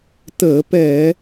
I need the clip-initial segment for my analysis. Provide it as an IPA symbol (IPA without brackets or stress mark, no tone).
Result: t